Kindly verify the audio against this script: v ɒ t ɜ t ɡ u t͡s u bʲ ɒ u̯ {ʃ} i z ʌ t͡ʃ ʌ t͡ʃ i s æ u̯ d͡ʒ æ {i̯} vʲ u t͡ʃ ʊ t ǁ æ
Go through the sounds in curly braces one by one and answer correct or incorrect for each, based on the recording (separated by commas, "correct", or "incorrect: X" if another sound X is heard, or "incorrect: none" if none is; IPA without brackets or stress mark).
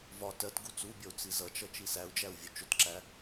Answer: incorrect: t͡s, incorrect: u̯